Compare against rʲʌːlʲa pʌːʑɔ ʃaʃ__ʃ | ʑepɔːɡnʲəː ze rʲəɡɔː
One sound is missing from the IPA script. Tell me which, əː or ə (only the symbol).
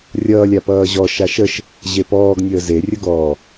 ə